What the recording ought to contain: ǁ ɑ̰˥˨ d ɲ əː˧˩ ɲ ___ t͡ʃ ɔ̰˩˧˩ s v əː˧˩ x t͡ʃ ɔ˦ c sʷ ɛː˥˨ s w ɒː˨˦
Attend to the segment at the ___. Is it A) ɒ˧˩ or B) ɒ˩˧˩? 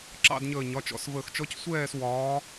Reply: B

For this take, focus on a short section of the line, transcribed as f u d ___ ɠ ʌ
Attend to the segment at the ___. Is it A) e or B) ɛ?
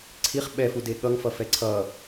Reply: A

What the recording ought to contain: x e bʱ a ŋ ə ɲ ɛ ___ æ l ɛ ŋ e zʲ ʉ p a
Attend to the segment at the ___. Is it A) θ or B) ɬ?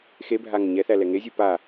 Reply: A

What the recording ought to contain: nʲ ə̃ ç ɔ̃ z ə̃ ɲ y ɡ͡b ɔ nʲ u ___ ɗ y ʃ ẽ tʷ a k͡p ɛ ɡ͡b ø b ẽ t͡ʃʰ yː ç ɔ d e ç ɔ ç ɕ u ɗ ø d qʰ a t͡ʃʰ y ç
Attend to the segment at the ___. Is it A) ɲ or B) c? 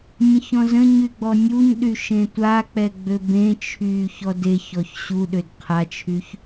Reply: A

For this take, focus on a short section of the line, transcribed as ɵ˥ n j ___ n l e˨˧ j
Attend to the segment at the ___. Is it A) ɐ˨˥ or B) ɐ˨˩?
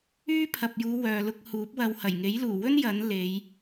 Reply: A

